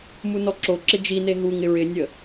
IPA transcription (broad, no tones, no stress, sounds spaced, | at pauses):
m u n ɔ ǁ o ǁ ɪ d͡ʒ i n e ɦ u ŋ ɪ ɹ ɪ nʲ ə